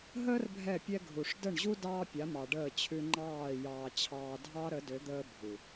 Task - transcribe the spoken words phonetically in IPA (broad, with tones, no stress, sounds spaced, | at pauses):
ɦ əː˦ r bʱ ɛ˦˨ pʲ ɛ˦ ɡʱ u˨ ʂ d ə˦˨ ɳ ʑ u˦ d ɑː˦ pʲ a˨˦ m ɑ˨ ɖ əː˦˨ t͡ɕʰ ʉ˦ ŋ͡ǃ ɑː˦˨ j ɑː˨ t͡ɕʰ ɑː˨ dʱ ɑ˦ ɾ ə˨˦ d ø˨˦ d̪ əː˦ bʱ u˨